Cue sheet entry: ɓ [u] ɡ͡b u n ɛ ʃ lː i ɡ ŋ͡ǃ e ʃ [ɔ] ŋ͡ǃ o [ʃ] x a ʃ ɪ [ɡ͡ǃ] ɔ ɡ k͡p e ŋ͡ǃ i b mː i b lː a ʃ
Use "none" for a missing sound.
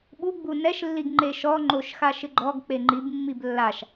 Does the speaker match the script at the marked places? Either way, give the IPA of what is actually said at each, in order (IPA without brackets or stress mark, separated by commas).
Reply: u, ɔ, ʃ, ɡ͡ǃ